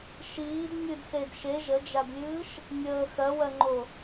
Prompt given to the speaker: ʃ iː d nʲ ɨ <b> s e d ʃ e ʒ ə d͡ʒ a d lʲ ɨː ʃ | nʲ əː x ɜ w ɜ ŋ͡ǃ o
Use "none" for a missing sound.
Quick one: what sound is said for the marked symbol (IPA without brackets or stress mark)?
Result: d